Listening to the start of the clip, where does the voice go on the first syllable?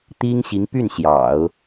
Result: high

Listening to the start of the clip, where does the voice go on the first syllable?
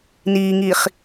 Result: low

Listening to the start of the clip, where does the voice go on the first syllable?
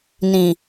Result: low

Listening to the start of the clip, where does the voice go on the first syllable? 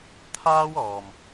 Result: high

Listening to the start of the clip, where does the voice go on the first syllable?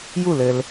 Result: falling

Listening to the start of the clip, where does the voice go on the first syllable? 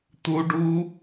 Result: high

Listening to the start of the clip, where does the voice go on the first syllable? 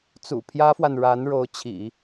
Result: low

